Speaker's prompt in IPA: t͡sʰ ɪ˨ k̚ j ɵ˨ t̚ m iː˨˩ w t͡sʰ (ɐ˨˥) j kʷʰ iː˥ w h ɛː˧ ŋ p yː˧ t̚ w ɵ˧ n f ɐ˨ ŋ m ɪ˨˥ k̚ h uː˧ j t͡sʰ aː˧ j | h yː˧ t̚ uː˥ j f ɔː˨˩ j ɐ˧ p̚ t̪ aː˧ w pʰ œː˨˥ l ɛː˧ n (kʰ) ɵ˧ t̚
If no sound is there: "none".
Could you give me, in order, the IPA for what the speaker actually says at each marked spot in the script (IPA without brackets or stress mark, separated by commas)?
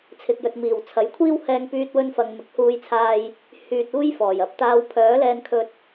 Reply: ɐ˨˥, kʰ